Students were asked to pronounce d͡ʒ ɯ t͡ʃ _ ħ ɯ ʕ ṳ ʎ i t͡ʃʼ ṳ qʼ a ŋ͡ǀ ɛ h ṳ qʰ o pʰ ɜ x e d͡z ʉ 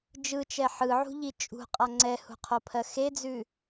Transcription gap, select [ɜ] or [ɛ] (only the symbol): ɛ